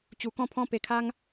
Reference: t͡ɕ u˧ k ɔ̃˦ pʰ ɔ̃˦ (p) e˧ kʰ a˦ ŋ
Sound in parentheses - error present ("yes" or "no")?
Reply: no